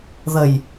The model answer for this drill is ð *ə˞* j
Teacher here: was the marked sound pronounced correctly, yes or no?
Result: no